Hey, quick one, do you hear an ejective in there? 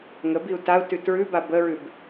no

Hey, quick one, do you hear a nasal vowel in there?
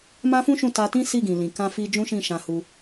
yes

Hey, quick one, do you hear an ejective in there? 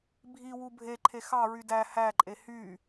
yes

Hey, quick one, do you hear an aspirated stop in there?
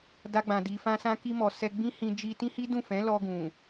no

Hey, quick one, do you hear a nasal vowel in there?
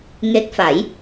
no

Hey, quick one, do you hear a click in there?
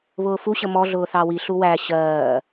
no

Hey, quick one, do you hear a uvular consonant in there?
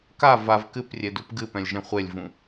yes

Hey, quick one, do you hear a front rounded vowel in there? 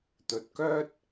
yes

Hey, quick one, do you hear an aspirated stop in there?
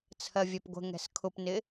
yes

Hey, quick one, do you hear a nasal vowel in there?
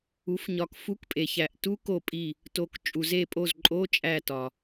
no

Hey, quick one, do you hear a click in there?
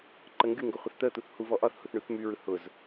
yes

